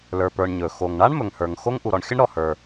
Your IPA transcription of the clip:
l ə˞˩ p ə˞˩ ɳ ɲ ɵ˩ x o˩ ŋ ɳ a˥ ɳ m ɵ˩ ŋ h ə˞˩ ŋ x o˥ ŋ ʔ u˩ ɾ ɔ˩ ɳ xʲ ə˥ ɳ ɾ ɔ˩ h ə˞˩

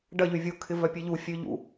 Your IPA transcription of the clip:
ɖ ɐ ʎ y vʲ o kʰ ɪ v œ pʲ e ʎ u fʲ ø ʎ ṵ

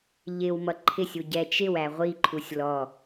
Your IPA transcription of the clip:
ʎ ɪ w m ʌ ǃʰ ɪ sʲ u ɟ ɛ t͡ʃ ɪ w æ ʁʷ i ǃʰ u sʲ l ɔ

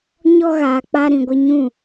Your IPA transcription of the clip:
ɲ ɔ˦ ɣ aː˨ k͡p a˦ ɾ ĩ˨ ɡʷ ɪ˦ ɲ ũ˦˨

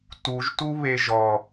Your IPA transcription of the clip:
t u ʒ t u β e ʒ ɔ

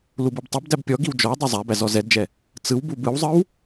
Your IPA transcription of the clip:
l u b i b tˤ ɛ b d æ b pʲ ɔ ɡ i w d͡ʒ ɔ w dˤ ɛ zˤ æ b æ z ɔ z ɛ d d͡ʒ ɛ | t͡s ɯ w b u b ɯ w zˤ ɯ w

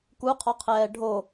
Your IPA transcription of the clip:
k u qʰ ɔ qʰ ɛː ɖʱ o

